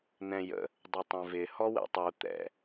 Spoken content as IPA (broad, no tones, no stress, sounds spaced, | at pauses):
n̪ ɛ̃ j ə̰ | dˤ ɪ tˤ ɛ̃ v ɪ h ɔ w ɛ̰ tˤ u t̪ ɛ̰